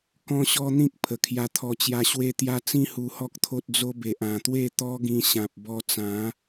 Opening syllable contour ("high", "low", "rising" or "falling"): high